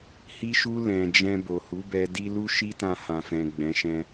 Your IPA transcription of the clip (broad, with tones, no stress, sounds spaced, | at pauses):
h i˧ ʃ u˧ l ɛ̃˨ d͡ʒ ɛ̃˧ b o˨ h u˨˦ b ɛ˧ d i˦ l u˦ ʃ i˦ t ã˧ h ã˨ f ɛ̃˨ ɡ͡b ɛ̃˨˦ ʃ ɛ̃˧